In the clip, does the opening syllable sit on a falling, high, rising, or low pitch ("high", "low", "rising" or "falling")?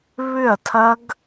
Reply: falling